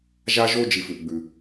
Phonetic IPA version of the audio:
ʒ a˥ ʒ o˥ d͡ʒ i˨ f ʉ˩ ʔ ɡ͡b ʉ˩

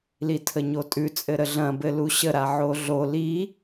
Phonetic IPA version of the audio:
l i tʰ ə ɲ o tʼ ʉ t͡sʼ ɘ ɾ ə ɮ ɐ̃ b ɘ l u ɕ ə ɾ a ʕ o ɮ o l i

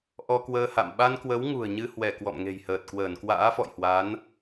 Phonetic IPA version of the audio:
ʔ ɔ˧ k w əː˧ h a̰˧˨ m ɓ a˧ n k w ə˨˦ w ŋ ṳ˨˩ ə̯ ɲ ɨ˧ h w ɛ˧˩ k w ɔ̰˧˨ m ŋ e̤˨˩ j h əː˨˩ t̚ k w əː˧˩ n k w a̰ː˧˥ f ɔ̰˧˨ j h w a˨˦ n

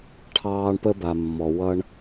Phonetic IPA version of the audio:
ʈʰ ɑː˧ ɳ p ə˧ b a˨ mː ɔ˨ w ʌ˧ ɳ

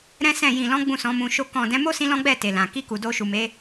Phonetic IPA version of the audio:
ɾ ɛ̃˦ s ɛ̃˦˨ j ĩ˨ l ɔ̃˨˦ ɡ͡b ũ˦˨ s ɔ̃˨˦ m ũ˧ ʃ o˦ k ɔ̃˦˨ d ɛ̃˨˦ m o˦ s ĩ˧ l ɔ̃˦ ɡ͡b ɛ˦˨ t e˨ l ã˨ k i˧ k u˨ d o˧ ʃ u˨ m e˨˦

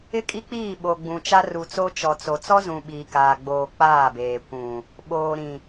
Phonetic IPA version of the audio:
ɪ˦ kʼ i˦ k͡p iː˦˨ ɓ o˨ ɡ͡b ũ˨ t͡ʃ a˦ r u˨ t͡s o˦ t͡ʃ ɔ˨ t͡s o˨ t͡s ɔ˦ z ũ˨ ɓ iː˨ k aː˨ ɡ͡b oː˨ k͡p aː˦˨ b eː˨ kʷ ũ˨ | ɓ oː˨ ɾ ĩ˨

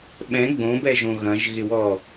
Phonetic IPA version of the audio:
ɓ ɛ̃ ɡ͡b õ b ɛ ʒ õ ɣ ɐ̃ ʒ ɣ ɪ w ɔ

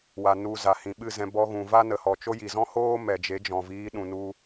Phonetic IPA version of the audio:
w a˨ n u˨ z a˨ h ĩ˨ ɓ ɨ˦˨ z ɛ̃˧ b ɔ˧ ɣ ũ˨ v a˦ n ə˨ h ɔ˨ t͡ʃ o˦ j i˨ z ɔ̃˦ h oː˦ m ɛ˨ d͡ʒ e˨˦ d͡ʒ ɔ̃˨ v iː˨˦ ɗ ũ˨ n u˧

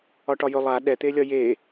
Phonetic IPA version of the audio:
ɒ ʈ ɒ j ɵ lˠ a ɗ ɛ t̪ e lʲ ɒ j e

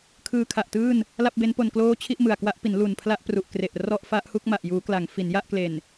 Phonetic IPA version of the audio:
kʰ ɯː˧ kʰ a˨˩ ʔ t ɯː˥˩ n | l a˥˩ p̚ b e˦˥ n p o˧ n k l oː˦˥ t͡ɕʰ i˥˩ ʔ m ɯ˨˩ a̯ k w a˦˥ ʔ p i˩˦ n l u˨˩ n pʰ l a˥˩ ʔ p r u˨˩ ʔ k r e˨˩ ʔ r ɔ˥˩ ʔ f a˦˥ ʔ h u˥˩ k̚ m a˨˩ ʔ j uː˩˦ k l a˩˦ ŋ f i˩˦ n j a˥˩ ʔ k l e˨˩ n

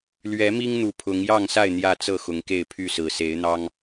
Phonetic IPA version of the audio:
l ɥ ɛ˨˦ m i˦ ŋ n̪ u˨˩ pʰ ʊ˨˦ ŋ j ɑ˥˨ ŋ s a˥˨ ɪ̯ n̪ j ä˥˨ t͡s ɤ˥˨ x ʊ˨˦ ŋ k e˥˨ ɪ̯ pʰ y˥˨ s ɹ̩˨˩ s e˨˦ ɪ̯ n̪ ɑ˦ ŋ

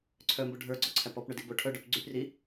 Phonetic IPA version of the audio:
ǀʰ œ m b o ɖʱ ə˞ ɡ͡ǀ ɔ ǀʰ æ p ɔ p ɳ œ d i b o ʈʰ œ ɖ œ p ɡ͡ǀ y p r i

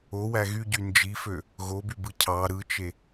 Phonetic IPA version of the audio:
o w æ ɣ y ɟ y n d͡ʒ i f ø | ɣ o b y b ɯ cʰ ɑ ɾ ɯ t͡ʃ e

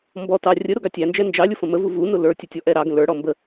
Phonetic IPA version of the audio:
m b ɔ t ɑ rʲ ə ɾ ʊ ɡ ɑ tʲ æ n d͡ʒ ɛ n d͡ʒ ɑ lʲ ʊ f ə̃ m ə v u v u n ʊ l ə˞ tʲ ə tʲ ɔ ʔ ɛ ɾ ɑ ɡ ə̃ l ə˞ ɽ ɔ m b ə

